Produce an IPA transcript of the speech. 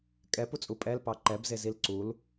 kʼ ɛ p u t͡sʼ u pʼ ɛ l p ɑ ǃ ɛ b z e z i l ǀ u l

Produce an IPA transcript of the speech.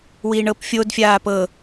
w i ɳ ɤ p fʲ o d fʲ aː p ɤ

